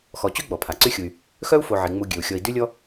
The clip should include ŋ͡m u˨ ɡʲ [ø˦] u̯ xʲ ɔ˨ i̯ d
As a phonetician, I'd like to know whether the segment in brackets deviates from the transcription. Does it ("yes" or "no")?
yes